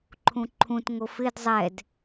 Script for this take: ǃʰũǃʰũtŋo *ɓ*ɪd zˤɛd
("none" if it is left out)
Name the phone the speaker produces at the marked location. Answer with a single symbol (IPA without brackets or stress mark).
f